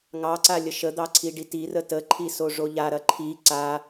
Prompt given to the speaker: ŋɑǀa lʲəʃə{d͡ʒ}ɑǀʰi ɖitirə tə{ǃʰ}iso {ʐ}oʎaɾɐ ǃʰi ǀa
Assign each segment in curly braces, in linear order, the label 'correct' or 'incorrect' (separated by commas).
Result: incorrect, correct, correct